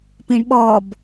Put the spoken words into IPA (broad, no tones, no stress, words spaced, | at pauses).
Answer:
pĩɳɓɔb